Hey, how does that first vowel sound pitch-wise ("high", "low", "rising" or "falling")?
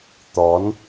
rising